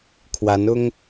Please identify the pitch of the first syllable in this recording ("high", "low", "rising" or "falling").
rising